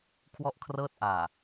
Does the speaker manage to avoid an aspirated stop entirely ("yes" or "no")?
no